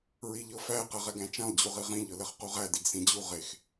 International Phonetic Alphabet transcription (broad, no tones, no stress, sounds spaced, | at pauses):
ɹ i ʎ ɤ f æ q ɛ ʁ ɛ ɡ æ̃ t͡ʃ æ̃ lˠ d͡ʑ u ʁ i ʁ ĩ ʎ ɤ l ɛ χ q u ʁ æ d i ɡ s ĩ d͡ʑ u ʁ e x